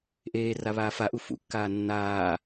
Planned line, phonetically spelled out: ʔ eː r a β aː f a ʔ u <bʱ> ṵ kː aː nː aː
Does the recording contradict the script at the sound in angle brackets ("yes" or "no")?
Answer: yes